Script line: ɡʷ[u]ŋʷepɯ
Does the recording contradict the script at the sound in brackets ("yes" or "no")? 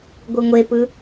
yes